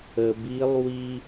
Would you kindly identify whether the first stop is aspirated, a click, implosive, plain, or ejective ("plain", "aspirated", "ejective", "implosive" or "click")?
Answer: plain